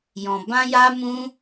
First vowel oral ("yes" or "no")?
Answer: no